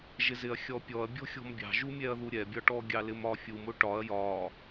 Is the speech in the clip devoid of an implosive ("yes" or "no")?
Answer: yes